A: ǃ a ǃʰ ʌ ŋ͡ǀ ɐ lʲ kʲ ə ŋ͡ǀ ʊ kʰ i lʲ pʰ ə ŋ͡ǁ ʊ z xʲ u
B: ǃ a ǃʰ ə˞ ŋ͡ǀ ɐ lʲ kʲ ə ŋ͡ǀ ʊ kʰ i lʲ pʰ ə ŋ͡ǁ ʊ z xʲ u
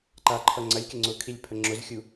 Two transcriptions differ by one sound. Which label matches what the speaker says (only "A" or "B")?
A